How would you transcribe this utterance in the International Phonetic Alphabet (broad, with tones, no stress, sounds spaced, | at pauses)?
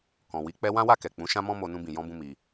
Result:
k ɔ̃˨ w i˨˦ k͡p ɛ˧ w ã˦ w a˦˨ k ɛ˨ k͡p ũ˨˦ ʃ ã˦ m ɔ̃˦ m o˧ n ũ˧ b ĩ˨ j ɔ̃˧ b ũ˧ m i˧